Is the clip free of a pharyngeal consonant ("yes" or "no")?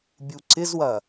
yes